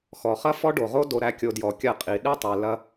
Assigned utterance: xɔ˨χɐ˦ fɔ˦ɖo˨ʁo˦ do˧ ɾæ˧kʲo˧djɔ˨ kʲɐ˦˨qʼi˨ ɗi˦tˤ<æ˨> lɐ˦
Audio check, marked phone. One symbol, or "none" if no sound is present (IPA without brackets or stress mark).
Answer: æ˨